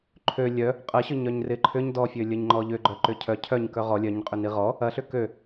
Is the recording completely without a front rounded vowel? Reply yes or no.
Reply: no